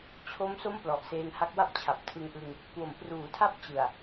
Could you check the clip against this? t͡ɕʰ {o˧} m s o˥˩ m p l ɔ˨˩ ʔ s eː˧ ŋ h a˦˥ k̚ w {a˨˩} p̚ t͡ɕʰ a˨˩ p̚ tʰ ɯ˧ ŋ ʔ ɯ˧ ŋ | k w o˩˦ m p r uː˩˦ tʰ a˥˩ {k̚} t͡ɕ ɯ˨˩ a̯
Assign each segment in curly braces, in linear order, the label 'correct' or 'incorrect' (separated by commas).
incorrect, incorrect, incorrect